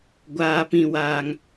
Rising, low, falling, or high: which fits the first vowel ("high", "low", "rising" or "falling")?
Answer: high